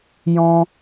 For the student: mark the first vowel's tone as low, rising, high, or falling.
high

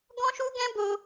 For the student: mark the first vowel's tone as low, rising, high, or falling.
high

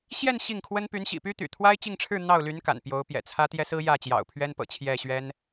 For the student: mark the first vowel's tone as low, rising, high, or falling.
falling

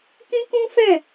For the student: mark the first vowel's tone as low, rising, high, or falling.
high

